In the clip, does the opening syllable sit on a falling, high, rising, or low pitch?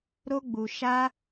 high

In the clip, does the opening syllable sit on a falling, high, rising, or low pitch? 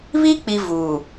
high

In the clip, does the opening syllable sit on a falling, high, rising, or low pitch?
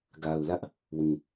low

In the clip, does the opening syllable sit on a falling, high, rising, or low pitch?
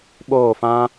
falling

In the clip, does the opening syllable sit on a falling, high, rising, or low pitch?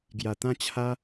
low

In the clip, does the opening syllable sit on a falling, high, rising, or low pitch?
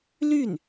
falling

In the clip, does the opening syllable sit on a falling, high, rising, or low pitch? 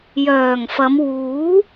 low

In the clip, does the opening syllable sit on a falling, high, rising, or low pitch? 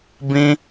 high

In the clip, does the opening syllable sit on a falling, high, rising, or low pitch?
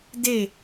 falling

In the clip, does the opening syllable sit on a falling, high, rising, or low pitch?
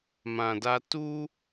low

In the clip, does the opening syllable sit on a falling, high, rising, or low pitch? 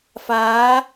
rising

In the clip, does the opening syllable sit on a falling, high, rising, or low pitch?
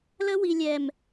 high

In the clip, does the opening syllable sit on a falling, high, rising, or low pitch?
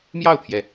falling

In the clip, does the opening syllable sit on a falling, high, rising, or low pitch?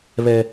high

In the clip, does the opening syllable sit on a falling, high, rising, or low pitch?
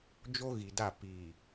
high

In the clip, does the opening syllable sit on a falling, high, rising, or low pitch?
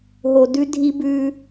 low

